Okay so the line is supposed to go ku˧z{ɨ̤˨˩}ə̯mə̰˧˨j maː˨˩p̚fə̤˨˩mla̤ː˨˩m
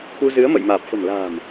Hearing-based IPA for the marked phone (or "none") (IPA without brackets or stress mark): ɨ˨˦